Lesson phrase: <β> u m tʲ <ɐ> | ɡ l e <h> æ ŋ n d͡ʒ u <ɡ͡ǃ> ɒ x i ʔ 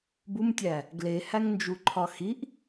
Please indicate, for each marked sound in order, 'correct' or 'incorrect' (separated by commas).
incorrect, incorrect, correct, incorrect